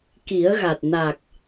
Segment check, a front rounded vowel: absent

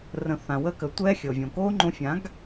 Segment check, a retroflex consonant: absent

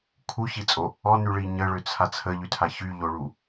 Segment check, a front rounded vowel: present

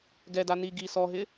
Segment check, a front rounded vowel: absent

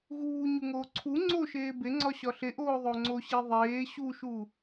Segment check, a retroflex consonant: absent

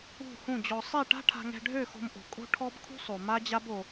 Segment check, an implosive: absent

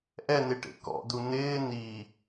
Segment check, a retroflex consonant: present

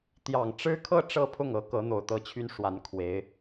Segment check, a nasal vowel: absent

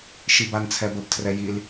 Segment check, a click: absent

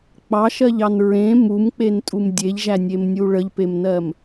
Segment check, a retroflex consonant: present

